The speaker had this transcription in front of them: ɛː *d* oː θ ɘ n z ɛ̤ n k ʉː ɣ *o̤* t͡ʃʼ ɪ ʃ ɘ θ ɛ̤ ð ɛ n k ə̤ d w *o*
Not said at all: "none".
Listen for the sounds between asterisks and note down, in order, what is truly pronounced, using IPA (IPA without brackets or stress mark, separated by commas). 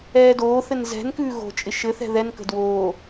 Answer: d, o̤, oː